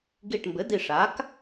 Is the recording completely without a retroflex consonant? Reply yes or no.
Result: no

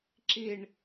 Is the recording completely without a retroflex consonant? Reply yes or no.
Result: no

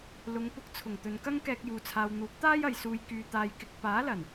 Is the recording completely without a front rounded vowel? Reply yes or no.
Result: no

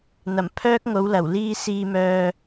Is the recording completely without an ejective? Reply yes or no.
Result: yes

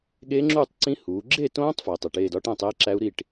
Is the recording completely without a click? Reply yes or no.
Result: no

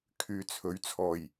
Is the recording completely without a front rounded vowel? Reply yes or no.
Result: no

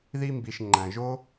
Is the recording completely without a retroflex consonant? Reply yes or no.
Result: yes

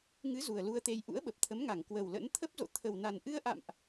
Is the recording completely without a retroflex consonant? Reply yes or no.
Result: yes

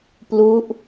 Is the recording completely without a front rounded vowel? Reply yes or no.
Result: yes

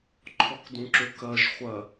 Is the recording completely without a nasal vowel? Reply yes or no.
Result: no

